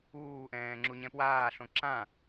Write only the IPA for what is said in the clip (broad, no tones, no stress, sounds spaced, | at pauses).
uː ʔ ɛ̃ː ŋ͡ǁ u ɲ ɛ̃ p w aː ɬ õ ǁ ã